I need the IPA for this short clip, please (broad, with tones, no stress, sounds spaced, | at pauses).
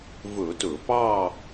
v ɵ˧˩˧ t ɵ˧˩˧ p ɑ˥˧